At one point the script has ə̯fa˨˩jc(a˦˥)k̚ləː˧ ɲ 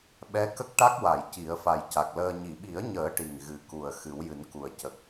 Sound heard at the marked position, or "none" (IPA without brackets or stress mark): a˨˩